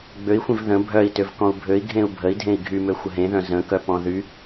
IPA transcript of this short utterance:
ɡ͡bøi̯xʷẽv ðə̃ bʱœi̯tøvkɔ̃u̯ bʱøi̯ɡʱẽu̯ bʱəi̯ dʱẽi̯ɡʱymø xʷəɦẽðœ̃ zə̃kœpɔ̃ ðy

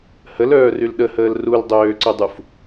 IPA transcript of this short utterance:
həlœːryl ɗəhəːl ruldˤøːǀʏdˤuf

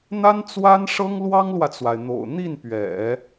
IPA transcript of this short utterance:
n̪a˥nt͡swa˥nʂɤ˥ŋ lwɑ˥ŋlwä˨t͡swa˩ɪ̯ n̪o̰˨˩ʊ̯ n̪i˥˩npɥɛ̰˨˩˦

